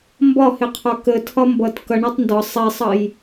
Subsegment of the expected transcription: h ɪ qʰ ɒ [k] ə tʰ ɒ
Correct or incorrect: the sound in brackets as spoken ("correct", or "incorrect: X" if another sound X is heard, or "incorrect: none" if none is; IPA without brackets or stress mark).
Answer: correct